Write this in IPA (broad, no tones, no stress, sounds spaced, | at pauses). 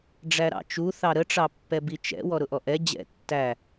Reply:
ɖ͡ʐ æ ɾ ɑ̰ t͡ʃ u θ ɑ ɾ ə ʈ͡ʂ ɑ pː ɛ b i t͡ʃ ɛ̰ w ɔ ɾ ʊ ʔ ɔ ʔ ɛ d͡ʑ ɛ̰ tː æ